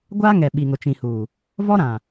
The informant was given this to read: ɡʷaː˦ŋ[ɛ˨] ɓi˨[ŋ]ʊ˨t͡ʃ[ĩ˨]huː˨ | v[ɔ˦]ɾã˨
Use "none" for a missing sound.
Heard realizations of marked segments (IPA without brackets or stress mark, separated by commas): ɛ˨, ŋ, ĩ˨, ɔ˦